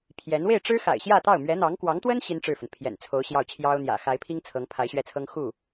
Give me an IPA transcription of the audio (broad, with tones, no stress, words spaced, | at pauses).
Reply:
pʰjɛ˧˥n we˥˩ɪ̯ʈ͡ʂɻ̩˥ xa̰˨˩ɪ̯ɕjä˥˧t̪ɑ˥˩ʊ̯ mɥɛ˧˥n̪ɑ˧˥ŋkwɑ˧˥ŋt̪wə˥n ɕi˥nʈ͡ʂɻ̩˥˩fə˩n pʰjɛ̰˨˩nt͡sʰo˧˥ʊ̯ ɕjɑ˥˩ʊ̯t͡ɕʰjɑ˥ʊ̯n̪jä̰˨˩ xa˧˥ɪ̯pʰi˥ŋ t͡sʰɤ˧˥ŋpʰa˧˥ɪ̯ɕɥɛ˥˩t͡sʰɤ˥ŋ xu˥˩